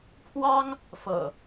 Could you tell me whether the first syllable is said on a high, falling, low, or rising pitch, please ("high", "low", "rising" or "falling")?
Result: high